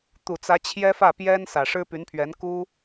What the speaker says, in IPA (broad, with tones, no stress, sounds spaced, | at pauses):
t̪ u˨˩ t͡s ä˧˥ t͡ɕʰ j ɛ˥ f ä˥˩ p j ɛ˥ n s ä˨˩ ʂ ɻ̩˥ p y˧˥ n pʰ ɥ ɛ˧˥ n k u˥